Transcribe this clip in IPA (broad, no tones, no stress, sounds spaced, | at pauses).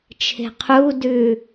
t͡ʃʰ e̤ qʰ u d ʉ